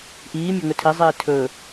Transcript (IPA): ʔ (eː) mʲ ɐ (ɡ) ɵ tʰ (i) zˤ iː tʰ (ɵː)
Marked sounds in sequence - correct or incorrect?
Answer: incorrect, incorrect, correct, correct

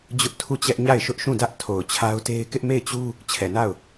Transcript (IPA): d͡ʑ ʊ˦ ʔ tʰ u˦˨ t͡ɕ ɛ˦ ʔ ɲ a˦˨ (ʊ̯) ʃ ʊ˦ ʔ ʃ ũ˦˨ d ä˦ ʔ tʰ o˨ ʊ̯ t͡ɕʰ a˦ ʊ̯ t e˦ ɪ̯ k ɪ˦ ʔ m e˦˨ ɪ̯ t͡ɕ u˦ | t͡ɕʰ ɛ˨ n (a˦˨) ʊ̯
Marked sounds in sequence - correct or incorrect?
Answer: incorrect, correct

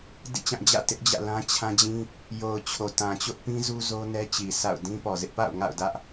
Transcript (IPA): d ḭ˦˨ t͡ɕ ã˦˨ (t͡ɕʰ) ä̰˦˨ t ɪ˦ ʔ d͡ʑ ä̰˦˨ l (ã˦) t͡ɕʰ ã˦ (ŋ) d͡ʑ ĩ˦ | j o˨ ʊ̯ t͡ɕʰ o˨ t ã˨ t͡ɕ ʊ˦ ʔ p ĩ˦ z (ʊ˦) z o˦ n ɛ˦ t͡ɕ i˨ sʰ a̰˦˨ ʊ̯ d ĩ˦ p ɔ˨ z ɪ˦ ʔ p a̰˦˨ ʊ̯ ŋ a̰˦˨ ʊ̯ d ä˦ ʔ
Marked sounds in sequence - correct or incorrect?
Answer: incorrect, correct, incorrect, incorrect

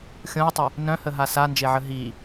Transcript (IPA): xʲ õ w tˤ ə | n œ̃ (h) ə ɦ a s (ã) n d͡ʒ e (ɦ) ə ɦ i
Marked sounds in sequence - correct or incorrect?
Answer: correct, incorrect, incorrect

